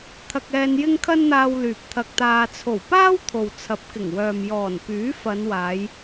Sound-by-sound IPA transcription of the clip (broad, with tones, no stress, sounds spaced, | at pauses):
t̪ʰ ɐ˧ k̚ ɛː˧ n j ɪ˥ ŋ kʰ ɐ˥ n n̪ aː˧ w l yː˨ p̚ t̪ʰ ɐ˧ k̚ t̪ aː˧ t͡sʰ o˨˩ w p aː˥ w t̪ʰ o˨ w t͡sʰ ɐ˨˥ p̚ k ɪ˨˩ ŋ w œː˨ m j ɔː˨˩ n p yː˨˥ f ɐ˨˧ n w aː˨˧ j